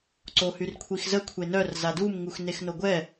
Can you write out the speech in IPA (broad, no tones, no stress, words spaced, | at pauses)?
ǀohyrkʷʰixzə kʷʰenœr zadum ŋuxnexnoɡʷɛ